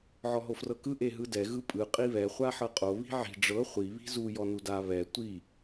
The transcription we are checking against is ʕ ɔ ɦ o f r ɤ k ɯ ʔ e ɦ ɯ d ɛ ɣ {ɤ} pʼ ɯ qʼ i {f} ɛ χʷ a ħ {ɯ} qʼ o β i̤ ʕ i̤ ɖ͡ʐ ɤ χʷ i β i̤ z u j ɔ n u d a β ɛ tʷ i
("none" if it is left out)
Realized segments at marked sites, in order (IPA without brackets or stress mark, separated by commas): ɯ, β, ɤ